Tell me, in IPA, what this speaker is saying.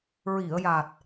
ɹ i˨˩˨ ə̯ j a˨˩ t̚

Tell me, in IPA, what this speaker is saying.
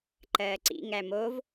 ǃ ɜː ǀ ḭ ŋ æ m o v

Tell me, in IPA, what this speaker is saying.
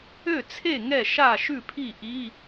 ø˥˨ t͡sʰ e˥˨ ŋ ɛ˥˨ ʃ a˥˨ ʃ ʉ˥˨ pʰ i˥˨ ʔ i˧˥˧

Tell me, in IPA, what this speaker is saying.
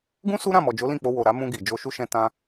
ɡ ũ˦ s u˦ ɾ ã˦˨ m ɔ˨ d͡ʒ o˨˦ l ĩ˦˨ k͡p o˧ w o˨ ɾ a˨˦ m ũ˧ ɡ i˨ d͡ʒ o˧ ʃ u˦ ʃ ɛ̃˧ t ã˧

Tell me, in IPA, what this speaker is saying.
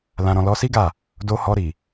l ã˨ ɾ ɔ̃˨ l ɔ˧ s i˦ ɡ a˦˨ | d o˧ h ɔ˧ ɾ i˨

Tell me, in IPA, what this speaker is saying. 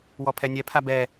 w ɔ pʰ ɛ nʲ ɛ pʰ a b ɛ

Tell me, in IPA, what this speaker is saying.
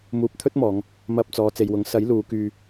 m uː˨ p̚ t̪ʰ ɵ˥ t̚ m ɔː˨˧ ŋ | m ɐ˨ p̚ t͡s ɔː˨˧ t͡s e˨ j w ʊ˨˥ ŋ s ɐ˨˥ j l uː˨˧ k yː˧

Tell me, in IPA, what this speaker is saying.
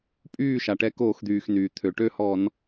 pʼ yː˥˨ ʃ a˩ ʈ ɛ˨˥ k oː˧˩˧ x d̪ yː˩ x n yː˩ t̪ʰ ø˩ ʈ ø˥˨ h ɔ˧˩˧ n

